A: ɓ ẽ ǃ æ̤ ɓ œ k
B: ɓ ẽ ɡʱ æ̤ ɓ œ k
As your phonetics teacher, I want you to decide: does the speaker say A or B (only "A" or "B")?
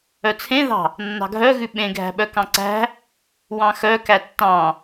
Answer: B